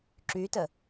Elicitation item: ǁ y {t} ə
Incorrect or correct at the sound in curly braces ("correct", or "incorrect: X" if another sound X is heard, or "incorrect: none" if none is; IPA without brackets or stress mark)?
correct